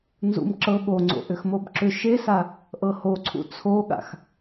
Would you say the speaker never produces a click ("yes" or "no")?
no